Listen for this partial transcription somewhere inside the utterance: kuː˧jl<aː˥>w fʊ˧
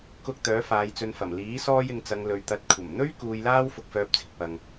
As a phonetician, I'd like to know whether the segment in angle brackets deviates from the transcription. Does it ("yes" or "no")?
no